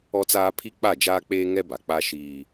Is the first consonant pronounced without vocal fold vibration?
yes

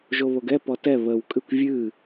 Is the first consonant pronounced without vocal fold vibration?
no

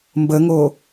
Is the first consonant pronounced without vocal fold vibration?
no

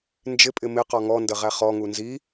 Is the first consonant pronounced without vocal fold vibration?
no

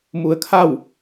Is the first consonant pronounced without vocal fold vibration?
no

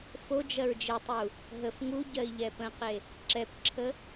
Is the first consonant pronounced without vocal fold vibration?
yes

